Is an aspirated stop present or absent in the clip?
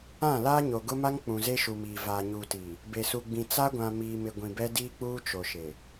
absent